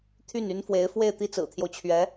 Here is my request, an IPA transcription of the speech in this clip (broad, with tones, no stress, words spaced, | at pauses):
t̪ʰy˥˩ny˥nfwe˧˥ɪ̯ fwe˥˧ɪ̯t̪i˥˩ t͡sɹ̩˨˩t̪ʰjo˦ʊ̯t͡ɕʰɥɛ˧˥